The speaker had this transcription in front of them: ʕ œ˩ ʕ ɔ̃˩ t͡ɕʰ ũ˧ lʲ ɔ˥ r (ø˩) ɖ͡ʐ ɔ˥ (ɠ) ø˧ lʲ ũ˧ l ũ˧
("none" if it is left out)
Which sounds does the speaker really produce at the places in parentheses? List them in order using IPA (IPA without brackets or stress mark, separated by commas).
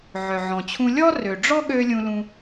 ø˩, ɠ